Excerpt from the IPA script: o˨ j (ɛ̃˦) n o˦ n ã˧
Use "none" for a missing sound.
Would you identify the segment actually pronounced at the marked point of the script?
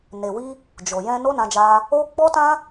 ɛ̃˧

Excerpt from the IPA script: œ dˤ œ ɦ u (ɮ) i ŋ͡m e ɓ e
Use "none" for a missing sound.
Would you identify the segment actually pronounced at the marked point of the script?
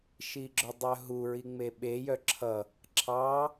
ɹ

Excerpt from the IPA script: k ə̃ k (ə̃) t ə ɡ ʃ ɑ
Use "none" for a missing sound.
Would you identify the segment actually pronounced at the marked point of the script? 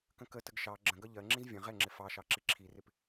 ə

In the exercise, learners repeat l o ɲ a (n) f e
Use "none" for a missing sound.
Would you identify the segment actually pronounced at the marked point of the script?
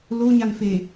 n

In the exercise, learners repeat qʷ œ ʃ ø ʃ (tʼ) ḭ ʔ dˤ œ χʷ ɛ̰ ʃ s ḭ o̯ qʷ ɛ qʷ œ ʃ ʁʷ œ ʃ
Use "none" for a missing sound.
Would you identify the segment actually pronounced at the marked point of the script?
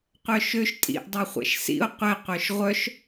tʼ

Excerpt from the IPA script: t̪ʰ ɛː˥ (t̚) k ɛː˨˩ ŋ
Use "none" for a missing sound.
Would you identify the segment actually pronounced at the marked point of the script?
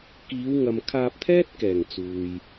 t̚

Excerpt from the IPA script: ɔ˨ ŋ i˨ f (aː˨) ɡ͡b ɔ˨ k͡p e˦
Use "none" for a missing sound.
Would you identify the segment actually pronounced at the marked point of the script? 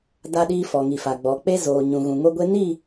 a˨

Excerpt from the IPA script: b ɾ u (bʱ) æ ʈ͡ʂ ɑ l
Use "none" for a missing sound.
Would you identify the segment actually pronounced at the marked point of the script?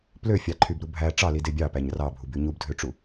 bʱ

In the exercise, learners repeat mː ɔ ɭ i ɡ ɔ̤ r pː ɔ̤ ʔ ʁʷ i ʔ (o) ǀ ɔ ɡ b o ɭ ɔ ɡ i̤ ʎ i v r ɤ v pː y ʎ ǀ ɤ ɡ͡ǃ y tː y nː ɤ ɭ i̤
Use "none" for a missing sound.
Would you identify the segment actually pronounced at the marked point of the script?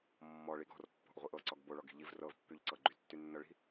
ɤ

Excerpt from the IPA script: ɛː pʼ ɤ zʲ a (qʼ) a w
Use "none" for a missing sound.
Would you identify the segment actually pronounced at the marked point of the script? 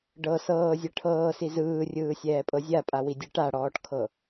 pʼ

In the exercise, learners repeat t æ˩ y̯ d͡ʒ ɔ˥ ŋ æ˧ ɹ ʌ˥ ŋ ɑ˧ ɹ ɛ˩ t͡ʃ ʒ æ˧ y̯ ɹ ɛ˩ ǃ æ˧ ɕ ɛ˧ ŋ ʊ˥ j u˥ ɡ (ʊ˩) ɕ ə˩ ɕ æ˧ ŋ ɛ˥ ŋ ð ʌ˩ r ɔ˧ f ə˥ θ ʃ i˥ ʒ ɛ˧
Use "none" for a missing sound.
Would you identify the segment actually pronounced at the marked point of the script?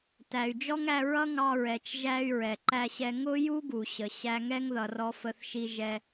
u˩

